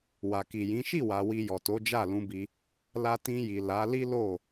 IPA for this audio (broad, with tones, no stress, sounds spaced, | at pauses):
w a˨ k i˨ j ĩ˨˦ ʃ i˦˨ w a˨ w i˧ j ɔ˨ t o˨˦ d͡ʒ a˦˨ l ũ˧ b i˧ | l a˧ t ĩ˧ j i˨ l a˨˦ l i˦ l o˦˨